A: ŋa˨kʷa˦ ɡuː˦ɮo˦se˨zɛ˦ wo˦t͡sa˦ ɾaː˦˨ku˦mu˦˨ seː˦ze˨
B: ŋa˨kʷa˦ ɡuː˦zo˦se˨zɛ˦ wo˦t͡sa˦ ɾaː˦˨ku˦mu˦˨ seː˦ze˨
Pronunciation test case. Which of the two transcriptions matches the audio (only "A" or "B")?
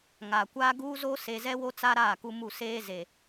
B